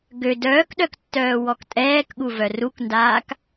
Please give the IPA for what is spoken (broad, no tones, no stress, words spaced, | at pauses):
ɡø dœːkɗœk tːœːwɔktʼɛːkɠu vœrukndaːk